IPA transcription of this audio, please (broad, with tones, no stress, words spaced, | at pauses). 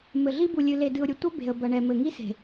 mɘ˨ɮi˦ bu˨lʲɨ˨ le˨dɨ˨ʊ̯ɾʲɘ˨ tʷɐ˦ be̤˨ə̯bɐ˨ɳɛ˨mɘ˨ ŋi˦se̤˨